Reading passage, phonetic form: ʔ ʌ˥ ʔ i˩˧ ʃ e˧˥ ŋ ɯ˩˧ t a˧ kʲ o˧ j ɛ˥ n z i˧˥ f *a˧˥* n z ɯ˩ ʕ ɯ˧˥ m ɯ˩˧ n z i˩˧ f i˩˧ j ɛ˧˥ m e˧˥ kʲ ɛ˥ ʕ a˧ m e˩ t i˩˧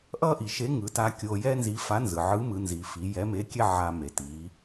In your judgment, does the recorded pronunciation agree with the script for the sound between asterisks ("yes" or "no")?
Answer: yes